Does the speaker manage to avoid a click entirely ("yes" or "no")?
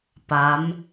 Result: yes